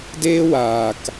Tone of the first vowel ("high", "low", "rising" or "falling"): high